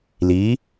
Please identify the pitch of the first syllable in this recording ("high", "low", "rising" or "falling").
rising